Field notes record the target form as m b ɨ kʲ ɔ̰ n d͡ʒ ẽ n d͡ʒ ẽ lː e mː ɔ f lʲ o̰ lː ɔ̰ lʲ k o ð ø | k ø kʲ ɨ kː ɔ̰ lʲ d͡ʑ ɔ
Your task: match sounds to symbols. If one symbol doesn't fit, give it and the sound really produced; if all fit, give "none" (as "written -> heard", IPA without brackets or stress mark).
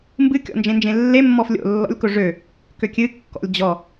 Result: ð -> ʐ